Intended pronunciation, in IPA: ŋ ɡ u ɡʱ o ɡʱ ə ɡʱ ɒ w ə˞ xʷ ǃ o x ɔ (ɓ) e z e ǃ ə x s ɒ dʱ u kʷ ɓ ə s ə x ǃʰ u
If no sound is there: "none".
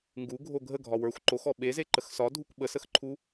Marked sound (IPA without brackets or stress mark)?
ɓ